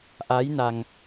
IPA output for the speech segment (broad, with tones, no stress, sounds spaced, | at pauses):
ʔ a˧˥ j n a˧ ŋ